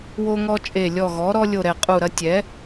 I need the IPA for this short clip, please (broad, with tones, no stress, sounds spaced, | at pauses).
w o˦ ŋ ɔ˦ t͡ʃʼ e˧˩ lʲ ɔ˧˩ ɣ ɔ˩˥ ɾ ɔ˦ lʲ o˧˩ ɾ ɛ˧˩ qʼ u˧˩ ɾ ɐ˦ tʲ ɛ˩˥